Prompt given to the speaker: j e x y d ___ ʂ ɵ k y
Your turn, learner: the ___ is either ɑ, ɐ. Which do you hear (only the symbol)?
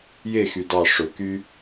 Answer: ɑ